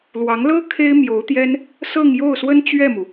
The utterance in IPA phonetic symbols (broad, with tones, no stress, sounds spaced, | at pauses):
l w ɑ˧˥ ŋ l ɤ˥ kʰ e˥ ɪ̯ m j o˧˥ ʊ̯ t̪ j ɛ˥ n | s ɤ˥˧ ŋ j o˥˩ ʊ̯ s w ə˥ n t͡ɕ ɥ ɛ˥˩ m u˩